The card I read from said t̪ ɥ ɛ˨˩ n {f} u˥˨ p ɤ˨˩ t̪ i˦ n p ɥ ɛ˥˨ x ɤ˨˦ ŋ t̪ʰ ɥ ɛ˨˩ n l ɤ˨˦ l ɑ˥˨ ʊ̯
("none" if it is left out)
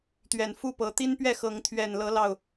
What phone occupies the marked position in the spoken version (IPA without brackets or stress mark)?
f